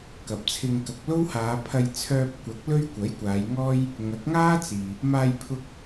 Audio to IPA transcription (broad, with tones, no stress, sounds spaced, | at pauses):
k ɐ˨ p̚ t͡sʰ ɪ˧ ŋ k ɐ˨ k̚ l o˥ w h aː˨˧ pʰ ɐ˧ j t͡sʰ œː˧ p̚ kʷ ɐ˨˥ k̚ l ɵ˥ ɥ kʷ ɐ˨˥ j kʷ aː˨˧ j ŋ ɔː˥ j | ŋ ɐ˨˥ k̚ ŋ aː˥ t͡s iː˨ | m aː˧ j pʰ ʊ˧ k̚